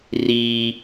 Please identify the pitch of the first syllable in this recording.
high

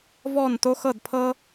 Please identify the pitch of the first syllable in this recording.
falling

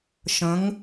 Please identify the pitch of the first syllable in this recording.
rising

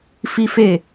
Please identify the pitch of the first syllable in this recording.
high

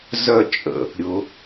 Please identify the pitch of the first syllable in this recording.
falling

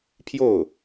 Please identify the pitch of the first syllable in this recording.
falling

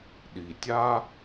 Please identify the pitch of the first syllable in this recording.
low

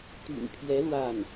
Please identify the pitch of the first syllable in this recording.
low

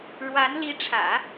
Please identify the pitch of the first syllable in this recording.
rising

